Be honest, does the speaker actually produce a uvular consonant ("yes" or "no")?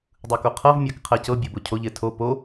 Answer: yes